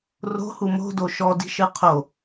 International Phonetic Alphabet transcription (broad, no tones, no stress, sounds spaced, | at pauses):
r o̤ h u m o̤ d o ʃ ɔ d i̤ ʃ ɨ qʰ o